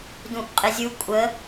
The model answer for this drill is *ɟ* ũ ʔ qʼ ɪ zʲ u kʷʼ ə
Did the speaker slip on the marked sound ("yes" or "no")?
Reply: yes